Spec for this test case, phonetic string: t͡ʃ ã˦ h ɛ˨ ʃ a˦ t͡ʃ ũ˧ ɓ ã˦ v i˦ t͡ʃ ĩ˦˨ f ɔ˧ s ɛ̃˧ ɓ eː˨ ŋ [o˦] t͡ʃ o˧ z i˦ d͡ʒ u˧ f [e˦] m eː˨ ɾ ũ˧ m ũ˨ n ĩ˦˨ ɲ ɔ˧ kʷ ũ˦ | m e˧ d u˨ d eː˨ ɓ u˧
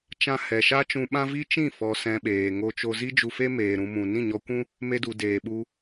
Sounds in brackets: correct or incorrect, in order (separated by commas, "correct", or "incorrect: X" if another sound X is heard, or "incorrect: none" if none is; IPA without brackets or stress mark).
incorrect: o˧, correct